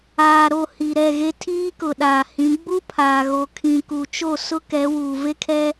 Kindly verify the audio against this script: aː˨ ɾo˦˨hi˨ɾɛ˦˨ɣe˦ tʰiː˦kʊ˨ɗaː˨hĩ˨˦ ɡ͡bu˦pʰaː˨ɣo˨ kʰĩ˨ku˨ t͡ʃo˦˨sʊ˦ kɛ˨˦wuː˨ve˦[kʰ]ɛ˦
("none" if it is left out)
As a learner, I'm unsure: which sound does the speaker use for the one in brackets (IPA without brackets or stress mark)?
kʰ